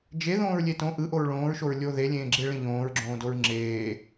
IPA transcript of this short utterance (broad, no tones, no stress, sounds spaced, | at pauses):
d͡ʒ e ð õː ɹ lʲ e t õ ʔ ɯ ʔ o ɹ ɭ õː ɹ ʃ o ɹ lʲ o ð e lʲ ẽː ɡ͡ǁ e ɭ ẽ ʎ õː ɹ ɡ͡ǁ õː d o ɹ ŋ͡ǁ eː